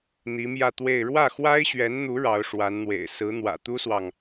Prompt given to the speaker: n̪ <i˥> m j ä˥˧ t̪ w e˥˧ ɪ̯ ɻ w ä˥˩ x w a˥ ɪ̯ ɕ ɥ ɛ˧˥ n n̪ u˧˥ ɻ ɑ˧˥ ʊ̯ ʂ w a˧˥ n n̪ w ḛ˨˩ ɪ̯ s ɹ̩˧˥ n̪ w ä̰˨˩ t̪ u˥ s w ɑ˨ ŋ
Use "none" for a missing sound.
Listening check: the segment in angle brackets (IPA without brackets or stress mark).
i˧˥